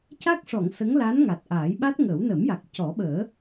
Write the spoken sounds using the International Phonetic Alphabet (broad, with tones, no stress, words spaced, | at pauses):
ca˦˥k̚ʂɔ˨˩˨ŋ sə˧˥ŋla˧˥n ŋa˨˩t̚ʔaː˨˩˦j ɓa˦˥t̚ŋəː˨˩˦w nə˨˩˦mja˨˩k̚ cɔ˨˩˦ɓəː˨˩˦